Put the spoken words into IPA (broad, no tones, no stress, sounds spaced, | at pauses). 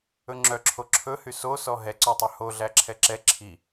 ɵ ŋ͡ǁ œ ǁʰ o ǁʰ ɵ h y s o s ɔ ɦ ɛ ǀ œ tˤ ʉ h o ɮ æ ǁʰ ɛ ǁ ɛ ǁʰ i